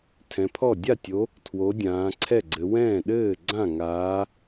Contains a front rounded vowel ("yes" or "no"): no